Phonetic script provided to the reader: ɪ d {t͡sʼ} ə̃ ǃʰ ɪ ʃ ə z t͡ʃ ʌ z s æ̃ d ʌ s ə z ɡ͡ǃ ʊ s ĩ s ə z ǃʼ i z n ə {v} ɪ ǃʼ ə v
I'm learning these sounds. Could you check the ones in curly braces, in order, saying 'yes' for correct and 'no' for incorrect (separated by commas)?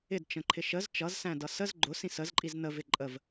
no, yes